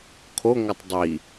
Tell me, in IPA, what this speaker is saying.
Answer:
kʰ o ŋ ʌ tˤ dˤ i

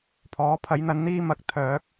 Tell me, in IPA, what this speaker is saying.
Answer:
pʰ ɔː˨˥ pʰ ɐ˨˥ j n̪ ɐ˨˥ n n̪ iː˥ m ɐ˨˥ k̚ t̪ʰ œː˨˥ k̚

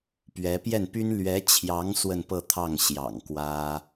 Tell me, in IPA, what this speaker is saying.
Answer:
p ɥ ɛ˧˥ p j ɛ˥˩ n p y˥ n l ɥ ɛ˧˥ t͡ɕʰ j ɑ˧˥ ŋ s w ə˥˧ n p ɤ˥˧ t̪ʰ ɑ˥˩ ŋ ɕ j ɑ̰˨˩ ŋ k w ä˥

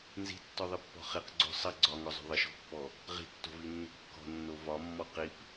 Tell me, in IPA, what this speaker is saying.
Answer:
n z i̤ tː ɔ ðˤ i pː ɔ̤ χ i q ɡ͡ǀ o̤ sˤ ɐ ɡ͡ǀ ɒ ŋ ɔ zˤ o̤ ðˤ ə ʃ ɔ̤ pː ɔ | ʁ i̤ tː o̤ v i nː ə̤ kː ɔ̤ nː o v ɒ mː ɔ q i p

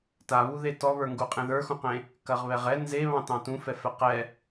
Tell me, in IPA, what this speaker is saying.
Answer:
t a β u ð e t ɔ β ə˞ ŋ ɡ u qʼ ẽ ð ə˞ x ũ q ẽ | k ɐ ʁ β ɛ ʁ ɛ n z e β ɑ̃ t ɑ̃ t ũ f ɛ f ɛ q ɛ

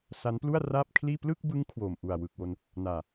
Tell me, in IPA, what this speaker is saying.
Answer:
s a˦˥ n p l u˥˩ a̯ r aː˥˩ p̚ kʰ l iː˥˩ p l ɯ˥˩ k̚ b ɯ˦˥ ŋ kʰ w o˨˩ m ʔ u˨˩ a̯ w ɯ˨˩ k̚ w o˧ n | n aː˨˩

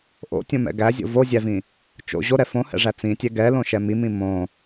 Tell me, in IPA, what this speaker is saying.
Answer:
ʔ o̰ tʲ õ m ɛ̰ ɡ æ zʲ o̰ v o zʲ æ v ĩ | t͡ʃ o̰ ʑ o ɾ ɛ f õ h ɛ̰ ʐ æ t͡s ĩ tʲ ɛ ɡ ɛ l õ ʃ ɛ m i m ĩ m õ

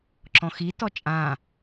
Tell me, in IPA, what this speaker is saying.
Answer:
ǁ ɔ̃ x i t ɔ t͡ʃʼ ã

